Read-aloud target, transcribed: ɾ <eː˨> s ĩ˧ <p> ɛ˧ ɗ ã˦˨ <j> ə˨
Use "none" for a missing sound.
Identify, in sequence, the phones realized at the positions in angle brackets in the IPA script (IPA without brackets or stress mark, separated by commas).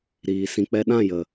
iː˨, k͡p, j